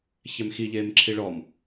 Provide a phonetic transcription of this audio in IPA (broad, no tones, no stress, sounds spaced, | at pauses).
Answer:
ç ɛ m x i ʎ eː m ǁʰ i ɭ ɔ m